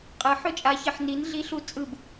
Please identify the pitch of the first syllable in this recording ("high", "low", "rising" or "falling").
rising